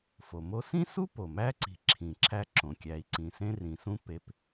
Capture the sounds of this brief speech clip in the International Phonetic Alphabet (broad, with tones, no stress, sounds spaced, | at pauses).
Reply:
f o˩ m o˦ s ĩ˥ s u˥ p o˩ m æ˦ ǀ i̤˨ ǁʰ ĩ˨ ǁʰ æ˦ ǁ õ˩ kʲ æ˨ i̯ ǀ ĩ˨ s ẽ˥ r ĩ˨ s ũ˦ p e˨ p